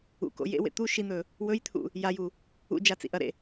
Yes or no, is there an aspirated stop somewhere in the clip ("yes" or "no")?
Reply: yes